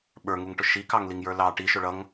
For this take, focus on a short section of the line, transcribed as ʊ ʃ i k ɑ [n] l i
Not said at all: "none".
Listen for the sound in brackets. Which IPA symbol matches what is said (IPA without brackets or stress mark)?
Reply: ŋ